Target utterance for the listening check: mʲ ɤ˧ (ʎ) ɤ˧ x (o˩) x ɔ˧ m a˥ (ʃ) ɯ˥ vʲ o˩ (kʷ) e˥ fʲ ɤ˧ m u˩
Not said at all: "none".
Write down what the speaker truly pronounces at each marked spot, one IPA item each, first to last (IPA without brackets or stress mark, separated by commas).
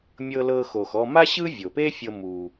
l, o˩, ɕ, p